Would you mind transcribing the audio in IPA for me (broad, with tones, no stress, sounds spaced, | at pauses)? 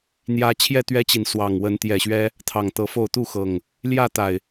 n̪ j ä˦ t͡ɕʰ j ɛ˥˨ t̪ ɥ ɛ˦ t͡ɕ i˨ n s w ɑ˨˩ ŋ w ə˨˦ n t̪ j ɛ˨˩ ɕ ɥ ɛ˦ | t̪ʰ ɑ˨˩ ŋ t̪ ɤ˨˦ f o˥˨ ʊ̯ t̪ u˥˨ x ɤ˨˩ ŋ | l j ä˥˨ t̪ a˨˩ ɪ̯